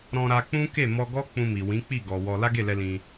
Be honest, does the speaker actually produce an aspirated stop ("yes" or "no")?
no